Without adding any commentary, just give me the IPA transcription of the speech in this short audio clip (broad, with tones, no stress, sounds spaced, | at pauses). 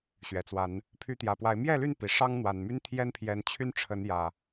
ɕ ɥ ɛ˨˩ t͡s w a˨˦ n | pʰ y˨˦ t̪ j ä˨˩ p w a˨˦ ɪ̯ m j ɛ˥˨ l y˥˨ n p i˨˩ ʂ ɑ˦ ŋ n̪ w a˨˩ n m y˦ n t̪ʰ j ɛ˦ n pʰ j ɛ˨˦ n t͡ɕʰ y˦ n ʈ͡ʂʰ ə˨˦ n j ä˨˩